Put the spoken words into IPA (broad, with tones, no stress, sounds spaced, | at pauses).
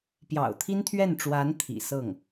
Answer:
p j ɑ̰˨˩ ʊ̯ t̪ʰ i˥ n t̪ʰ ɥ ɛ˥˩ n ʈ͡ʂ w a˧˥ n t̪ʰ ḭ˨˩ s ɤ˥˩ ŋ